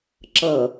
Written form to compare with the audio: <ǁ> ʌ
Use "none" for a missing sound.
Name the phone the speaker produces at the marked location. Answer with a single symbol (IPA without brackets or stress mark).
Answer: ǁ